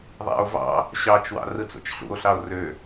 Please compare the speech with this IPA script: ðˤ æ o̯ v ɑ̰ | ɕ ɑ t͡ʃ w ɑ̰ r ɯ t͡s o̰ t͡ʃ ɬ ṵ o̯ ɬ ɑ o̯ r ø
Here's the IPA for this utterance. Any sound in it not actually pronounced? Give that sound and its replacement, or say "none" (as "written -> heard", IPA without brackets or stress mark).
æ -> æ̰